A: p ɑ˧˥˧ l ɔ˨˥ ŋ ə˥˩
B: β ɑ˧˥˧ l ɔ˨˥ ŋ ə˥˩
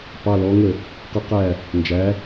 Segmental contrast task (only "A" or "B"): A